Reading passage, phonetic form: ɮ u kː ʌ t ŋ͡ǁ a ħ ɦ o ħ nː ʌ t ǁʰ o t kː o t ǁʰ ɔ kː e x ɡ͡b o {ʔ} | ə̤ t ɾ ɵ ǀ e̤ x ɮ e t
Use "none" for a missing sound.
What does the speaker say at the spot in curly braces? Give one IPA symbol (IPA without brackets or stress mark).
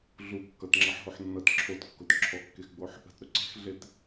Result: ħ